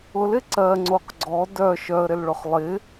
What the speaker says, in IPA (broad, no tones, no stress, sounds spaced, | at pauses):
ʊ l ɪ ǀ ɜ ŋ͡ǀ o q ɡ͡ǀ ɔ d œ ʃ œ ə̯ ɾ ɪ l ɭ ʊ χ lˠ ɪ